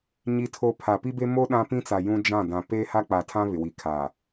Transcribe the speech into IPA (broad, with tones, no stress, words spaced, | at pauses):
ɲi˦tʰo˦ pʰa˨pi˦be˦ mo˦ ɗã˦pĩ˦t͡sa˨ jũ˦d͡ʒã˦˨ dã˨ peː˦ha˦k͡pa˨tʰã˦ βɪ˨wi˨kʰaː˨